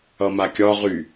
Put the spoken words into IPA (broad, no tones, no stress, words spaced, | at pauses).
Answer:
ʌmakʲɒ ʁy